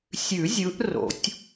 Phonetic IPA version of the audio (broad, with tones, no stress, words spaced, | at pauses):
sʲʉ˨˩˦ zʲɯ˨˦ʔ ro̰˨˩˦tʲ